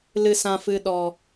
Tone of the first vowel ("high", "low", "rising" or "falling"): low